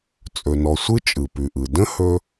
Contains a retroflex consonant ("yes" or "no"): no